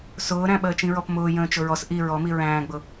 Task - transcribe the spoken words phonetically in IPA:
sʊːɾæ̃ ɓəːt͡ʃĩɹɔpmʊː jə̃ːt͡ʃʊɹɔs ʔi ɹɔmi ɹæ̃ːɡ͡bʊ

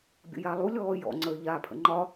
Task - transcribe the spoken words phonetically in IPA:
bʲə̰jalˠu lʲɔːjɔ̰ ŋ͡ǀəːʎaːpʰə̰ŋ͡ǃɒ

